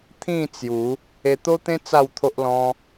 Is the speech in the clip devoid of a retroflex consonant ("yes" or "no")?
yes